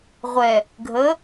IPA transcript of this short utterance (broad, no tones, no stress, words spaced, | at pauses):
ʁʷɛ | ɡʱə